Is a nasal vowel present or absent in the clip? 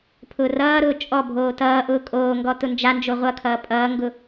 absent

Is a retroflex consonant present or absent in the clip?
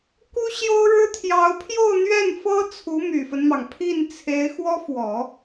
present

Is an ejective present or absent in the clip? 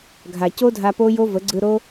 absent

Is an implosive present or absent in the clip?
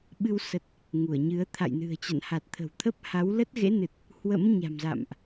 present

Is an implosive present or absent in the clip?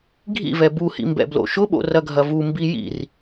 present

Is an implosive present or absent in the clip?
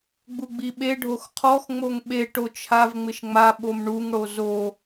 present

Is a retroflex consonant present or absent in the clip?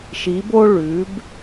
present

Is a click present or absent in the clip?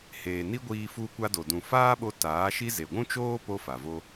absent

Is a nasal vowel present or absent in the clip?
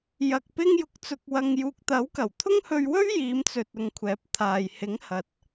absent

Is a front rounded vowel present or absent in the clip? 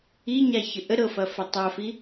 absent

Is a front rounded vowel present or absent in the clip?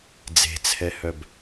present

